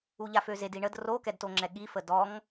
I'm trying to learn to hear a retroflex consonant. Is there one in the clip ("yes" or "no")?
yes